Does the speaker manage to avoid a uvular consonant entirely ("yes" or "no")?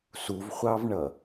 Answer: no